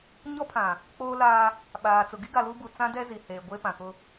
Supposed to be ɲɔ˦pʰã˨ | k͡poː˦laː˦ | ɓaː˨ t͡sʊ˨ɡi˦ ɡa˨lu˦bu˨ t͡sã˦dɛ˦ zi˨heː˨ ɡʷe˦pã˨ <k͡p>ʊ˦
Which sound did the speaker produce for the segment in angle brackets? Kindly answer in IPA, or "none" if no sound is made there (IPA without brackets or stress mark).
k